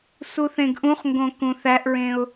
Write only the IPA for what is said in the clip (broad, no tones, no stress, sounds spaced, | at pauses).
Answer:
s u θ ẽ ɡ ʔ ũ χ ŋ ɡ õ k ũ θ æ ʔ ɹ ẽ ʊ̯